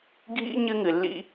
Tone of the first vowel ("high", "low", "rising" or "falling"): high